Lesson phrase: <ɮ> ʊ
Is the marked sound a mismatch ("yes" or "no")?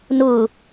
yes